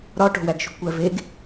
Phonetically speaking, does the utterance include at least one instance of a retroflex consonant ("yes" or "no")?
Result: yes